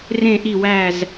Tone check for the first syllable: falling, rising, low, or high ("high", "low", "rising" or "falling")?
falling